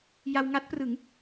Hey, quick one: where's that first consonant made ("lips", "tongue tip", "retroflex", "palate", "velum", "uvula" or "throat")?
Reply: palate